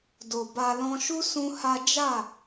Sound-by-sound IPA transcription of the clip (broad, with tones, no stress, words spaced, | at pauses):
do˨ba˧lɔ̃˦ ʃu˦ sũ˦ha˦ d͡ʒa˦˨